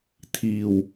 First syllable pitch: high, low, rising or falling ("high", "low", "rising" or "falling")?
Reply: low